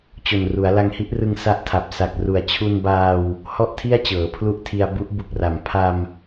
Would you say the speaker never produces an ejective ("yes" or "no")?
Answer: yes